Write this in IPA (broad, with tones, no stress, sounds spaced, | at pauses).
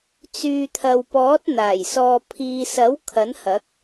t͡s yː˨ t̪ʰ ɐ˨ w p ɔː˨˥ t̚ n̪ aː˨˩ j s ɔː˨ pʰ iː˨ s ɐ˨˥ w kʰ ɐ˨˥ n h ɐ˨˥ k̚